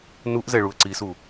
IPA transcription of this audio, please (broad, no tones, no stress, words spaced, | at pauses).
nuʔzɛɭuə̯ ǀisu